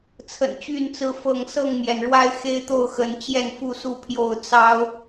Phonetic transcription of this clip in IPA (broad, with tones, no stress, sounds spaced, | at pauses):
t͡sʰ ə̰˨˩ n t͡ɕ y˥˨ n t͡s ɹ̩˦ f ɤ˥˨ ŋ s ɤ˥˨ ŋ m j ɛ˩ n ɻ w a˦ ɪ̯ x e˦ ɪ̯ t̪ o˥˨ ʊ̯ x ə˨˦ n t͡ɕ j ɛ˥˨ n f u˥˨ s u˥˨ pʰ j o˥˨ ʊ̯ t͡s ɑ˦ ʊ̯